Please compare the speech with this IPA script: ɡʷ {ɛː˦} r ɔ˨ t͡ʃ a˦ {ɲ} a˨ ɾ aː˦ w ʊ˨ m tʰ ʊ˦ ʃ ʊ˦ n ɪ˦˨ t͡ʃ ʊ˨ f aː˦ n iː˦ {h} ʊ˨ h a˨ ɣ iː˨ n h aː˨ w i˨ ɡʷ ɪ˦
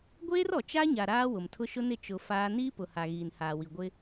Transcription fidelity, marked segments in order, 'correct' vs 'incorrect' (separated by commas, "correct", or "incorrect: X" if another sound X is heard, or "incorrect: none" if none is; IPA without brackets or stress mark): incorrect: eː˦, correct, incorrect: p